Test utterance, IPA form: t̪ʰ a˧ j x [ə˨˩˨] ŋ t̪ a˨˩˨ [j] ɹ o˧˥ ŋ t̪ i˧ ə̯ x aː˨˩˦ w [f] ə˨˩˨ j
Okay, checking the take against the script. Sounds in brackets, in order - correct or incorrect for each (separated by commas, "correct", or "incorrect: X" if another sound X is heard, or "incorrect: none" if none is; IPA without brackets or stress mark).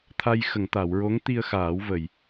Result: correct, incorrect: w, incorrect: v